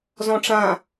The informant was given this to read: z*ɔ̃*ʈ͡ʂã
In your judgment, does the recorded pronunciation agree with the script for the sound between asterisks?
yes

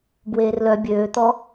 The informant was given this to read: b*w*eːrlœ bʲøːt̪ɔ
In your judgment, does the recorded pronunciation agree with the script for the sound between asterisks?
yes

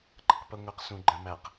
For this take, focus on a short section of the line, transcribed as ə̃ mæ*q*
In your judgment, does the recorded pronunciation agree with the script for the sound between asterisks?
yes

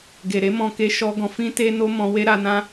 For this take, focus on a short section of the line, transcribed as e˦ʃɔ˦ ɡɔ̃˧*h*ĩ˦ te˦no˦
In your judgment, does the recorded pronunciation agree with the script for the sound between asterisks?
no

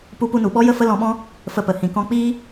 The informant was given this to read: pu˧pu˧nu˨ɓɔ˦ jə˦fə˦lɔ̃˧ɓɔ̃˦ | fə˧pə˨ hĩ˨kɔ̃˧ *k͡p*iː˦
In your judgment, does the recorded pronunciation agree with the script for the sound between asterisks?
yes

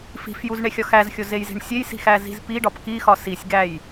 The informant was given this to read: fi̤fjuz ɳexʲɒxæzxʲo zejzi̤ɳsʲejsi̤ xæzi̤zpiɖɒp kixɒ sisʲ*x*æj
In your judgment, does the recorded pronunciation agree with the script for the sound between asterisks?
no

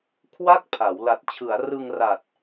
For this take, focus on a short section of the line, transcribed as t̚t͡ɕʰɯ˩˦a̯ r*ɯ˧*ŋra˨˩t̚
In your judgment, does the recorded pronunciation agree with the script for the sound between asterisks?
yes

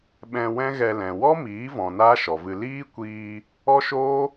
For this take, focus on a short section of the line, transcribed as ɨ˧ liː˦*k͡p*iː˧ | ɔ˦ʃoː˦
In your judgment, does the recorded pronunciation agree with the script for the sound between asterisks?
no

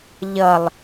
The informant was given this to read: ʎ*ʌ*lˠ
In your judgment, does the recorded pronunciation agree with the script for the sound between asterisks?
yes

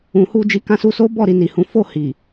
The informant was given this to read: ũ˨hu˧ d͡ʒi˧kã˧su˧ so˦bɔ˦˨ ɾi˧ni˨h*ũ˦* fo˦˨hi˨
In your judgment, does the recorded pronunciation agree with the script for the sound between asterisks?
no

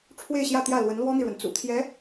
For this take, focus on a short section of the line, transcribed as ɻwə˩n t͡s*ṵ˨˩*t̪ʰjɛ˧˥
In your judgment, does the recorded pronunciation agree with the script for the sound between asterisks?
yes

